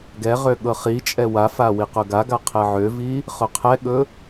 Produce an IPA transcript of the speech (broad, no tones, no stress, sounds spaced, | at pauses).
ɡ ɛ ʁ ø ɠ ɤ χ i t͡ʃʼ ɛ w a f a w i q ʊ ɡ a ɡ a qʰ ɛ ʕ ø v i | χ ʊ qʰ ɛ ɠ ɵ